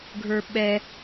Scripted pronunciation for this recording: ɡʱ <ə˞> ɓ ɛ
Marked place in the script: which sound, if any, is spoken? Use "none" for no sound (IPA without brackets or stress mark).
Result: ə˞